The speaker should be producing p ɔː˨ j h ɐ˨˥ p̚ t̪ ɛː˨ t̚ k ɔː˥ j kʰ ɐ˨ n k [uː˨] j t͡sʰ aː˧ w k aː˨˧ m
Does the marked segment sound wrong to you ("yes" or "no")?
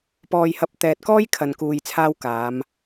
no